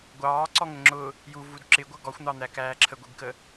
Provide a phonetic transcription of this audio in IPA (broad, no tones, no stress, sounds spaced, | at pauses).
ɡʷ ɑː ǀ ɔ ŋ ə ŋ͡ǁ ʊ | j u v u d ǁ ɪ ɡʷ ʌ ɡ ɔ xʷ n̪ ɑ n̪ æ k æː ǁʰ ə ɡʷ i ɡ k ə